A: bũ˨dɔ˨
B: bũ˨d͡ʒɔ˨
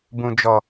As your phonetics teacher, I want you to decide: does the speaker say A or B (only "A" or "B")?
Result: B